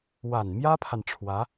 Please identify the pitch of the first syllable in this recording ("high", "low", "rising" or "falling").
low